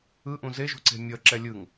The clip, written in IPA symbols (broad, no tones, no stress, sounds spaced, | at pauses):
ɯ ʔ ũ z e ʒ ṳ ǀ e̤ mʲ ʌ ǁ ɛ lʲ ɯ ŋ